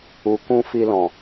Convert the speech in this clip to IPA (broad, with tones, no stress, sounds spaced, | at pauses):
u˨ k ũ˧ f i˧ l ɔ̃˨